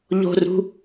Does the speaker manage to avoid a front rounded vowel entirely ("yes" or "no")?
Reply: yes